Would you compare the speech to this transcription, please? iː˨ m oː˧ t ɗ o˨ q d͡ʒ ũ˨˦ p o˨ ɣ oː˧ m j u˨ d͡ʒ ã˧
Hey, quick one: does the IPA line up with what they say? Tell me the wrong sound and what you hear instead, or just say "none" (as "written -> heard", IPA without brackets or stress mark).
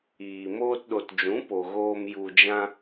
q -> t